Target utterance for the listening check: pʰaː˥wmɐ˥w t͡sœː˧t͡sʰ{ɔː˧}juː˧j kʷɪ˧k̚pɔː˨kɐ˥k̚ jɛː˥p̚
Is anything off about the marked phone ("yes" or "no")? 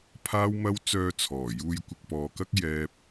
yes